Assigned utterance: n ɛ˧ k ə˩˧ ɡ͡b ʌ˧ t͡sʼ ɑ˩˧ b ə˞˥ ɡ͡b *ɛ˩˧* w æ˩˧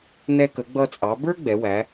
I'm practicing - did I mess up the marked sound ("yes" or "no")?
no